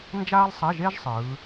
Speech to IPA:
n d͡ʒ aː˥ lˠ sˤ ɛ˧˥˧ ʒ e˥ ʒ sˤ ɯː˨˦

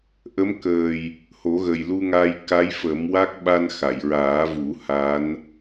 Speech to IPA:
ʔ ə˧˥ m k əː˨˩ j | h o˨˩˦ ɣ ə˨˩ j l u˧ ŋ a˧ j k a˧˥ j f ə˨˩˦ m w a˦˥ k̚ ɓ a˧ n x a˨˩˨ j ɹ aː˨˩˦ v u˨˩˦ h a˧˥ n

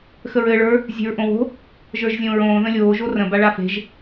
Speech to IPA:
x ə ɹ ɘː ɭ ə˞ | zʲ e̤ ɹ ʔ õ w o̤ | ʒ ə˞ ʒ zʲ õː ɹ õː ð ə̃ lʲ oː ʒ o r ə̃ b a ɭ a f e̤ ʒ

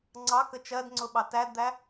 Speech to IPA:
ŋ͡ǀ ɑ k ə t͡ʃ ɜ d ŋ͡ǀ ʊ ɓ ɑ t æ d d̪ æ

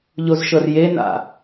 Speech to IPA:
ʎ o z ʃ ɤ r j e n a̰

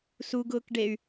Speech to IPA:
s u ɡ ʊː k ɖ e y̯

